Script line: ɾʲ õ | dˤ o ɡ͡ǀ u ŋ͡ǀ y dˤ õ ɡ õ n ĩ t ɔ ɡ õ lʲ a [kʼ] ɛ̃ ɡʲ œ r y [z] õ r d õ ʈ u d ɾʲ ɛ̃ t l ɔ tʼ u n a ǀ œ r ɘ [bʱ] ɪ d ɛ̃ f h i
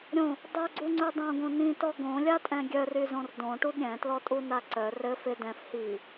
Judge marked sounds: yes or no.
no, yes, no

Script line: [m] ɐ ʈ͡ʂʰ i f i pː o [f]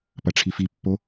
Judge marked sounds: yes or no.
no, no

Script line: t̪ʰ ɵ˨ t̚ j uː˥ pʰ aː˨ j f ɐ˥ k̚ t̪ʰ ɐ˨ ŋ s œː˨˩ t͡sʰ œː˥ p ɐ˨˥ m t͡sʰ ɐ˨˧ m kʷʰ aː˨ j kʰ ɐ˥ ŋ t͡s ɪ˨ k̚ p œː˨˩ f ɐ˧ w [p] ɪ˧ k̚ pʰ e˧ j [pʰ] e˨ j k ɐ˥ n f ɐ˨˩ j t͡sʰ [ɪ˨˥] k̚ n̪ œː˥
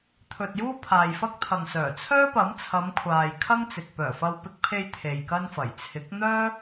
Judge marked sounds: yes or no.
yes, no, yes

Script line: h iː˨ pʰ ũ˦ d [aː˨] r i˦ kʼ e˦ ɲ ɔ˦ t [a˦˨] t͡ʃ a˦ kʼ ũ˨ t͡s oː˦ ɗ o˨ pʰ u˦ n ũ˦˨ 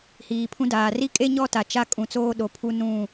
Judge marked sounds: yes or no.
yes, no

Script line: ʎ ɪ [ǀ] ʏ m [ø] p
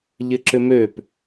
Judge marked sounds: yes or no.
no, yes

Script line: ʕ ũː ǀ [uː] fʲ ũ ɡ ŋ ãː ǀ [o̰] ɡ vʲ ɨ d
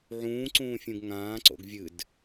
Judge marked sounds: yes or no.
no, yes

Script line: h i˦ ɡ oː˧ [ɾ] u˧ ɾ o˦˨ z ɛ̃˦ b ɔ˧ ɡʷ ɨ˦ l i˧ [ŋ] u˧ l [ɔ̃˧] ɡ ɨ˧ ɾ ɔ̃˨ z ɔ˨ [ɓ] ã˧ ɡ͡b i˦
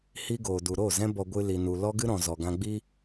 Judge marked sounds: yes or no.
no, no, no, no

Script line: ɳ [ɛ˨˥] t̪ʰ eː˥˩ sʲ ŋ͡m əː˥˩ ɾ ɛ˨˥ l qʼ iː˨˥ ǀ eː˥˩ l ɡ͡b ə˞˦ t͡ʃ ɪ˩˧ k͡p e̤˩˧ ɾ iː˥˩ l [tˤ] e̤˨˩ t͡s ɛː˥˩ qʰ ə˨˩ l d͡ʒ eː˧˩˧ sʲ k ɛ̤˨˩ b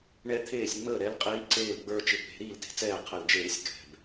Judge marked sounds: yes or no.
no, no

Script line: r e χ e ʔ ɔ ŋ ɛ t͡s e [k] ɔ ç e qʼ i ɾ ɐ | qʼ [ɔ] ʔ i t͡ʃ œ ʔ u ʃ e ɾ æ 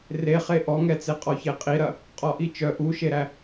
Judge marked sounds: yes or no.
no, yes

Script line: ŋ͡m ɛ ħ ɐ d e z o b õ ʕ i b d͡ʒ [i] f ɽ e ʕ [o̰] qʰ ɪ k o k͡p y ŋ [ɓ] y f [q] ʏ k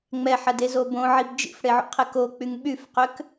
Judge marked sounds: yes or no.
no, yes, yes, yes

